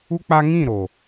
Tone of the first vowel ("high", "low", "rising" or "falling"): high